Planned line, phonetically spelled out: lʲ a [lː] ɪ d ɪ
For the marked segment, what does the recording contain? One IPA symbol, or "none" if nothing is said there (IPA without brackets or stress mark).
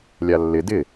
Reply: lː